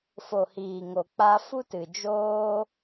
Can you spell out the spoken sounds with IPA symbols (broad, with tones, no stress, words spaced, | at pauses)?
fo˨hiː˨ŋo˨ k͡pa˧ fu˦tɨ˨d͡ʒoː˦